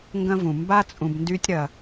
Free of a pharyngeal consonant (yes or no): yes